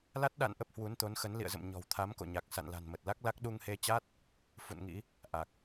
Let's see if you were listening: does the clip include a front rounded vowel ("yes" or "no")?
no